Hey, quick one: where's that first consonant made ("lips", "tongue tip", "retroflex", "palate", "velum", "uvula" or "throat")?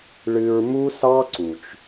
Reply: retroflex